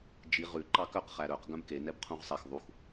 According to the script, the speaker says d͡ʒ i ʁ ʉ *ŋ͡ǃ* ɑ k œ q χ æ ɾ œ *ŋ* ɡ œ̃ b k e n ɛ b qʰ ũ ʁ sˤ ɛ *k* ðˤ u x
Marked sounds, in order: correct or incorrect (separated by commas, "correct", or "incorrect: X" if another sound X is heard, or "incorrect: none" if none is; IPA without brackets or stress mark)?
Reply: incorrect: ǃ, incorrect: q, incorrect: x